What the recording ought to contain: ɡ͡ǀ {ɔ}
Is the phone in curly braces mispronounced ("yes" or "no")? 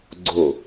yes